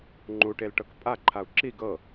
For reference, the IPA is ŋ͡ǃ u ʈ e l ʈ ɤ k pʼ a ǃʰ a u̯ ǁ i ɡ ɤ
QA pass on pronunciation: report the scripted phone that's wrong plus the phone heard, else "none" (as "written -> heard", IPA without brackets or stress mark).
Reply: none